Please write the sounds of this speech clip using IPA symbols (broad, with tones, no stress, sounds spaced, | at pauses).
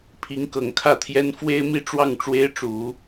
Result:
pʰ i˧˥ ŋ k ɤ˨˩ ŋ kʰ ä˥˩ t̪ʰ j ɛ˥ n f w e˥ ɪ̯ m i˥ ʈ͡ʂ w ɑ˥˩ ŋ ʈ͡ʂ w e˥ ɪ̯ ʈ͡ʂ u˨˩˦